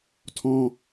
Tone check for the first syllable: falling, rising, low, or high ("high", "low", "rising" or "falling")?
high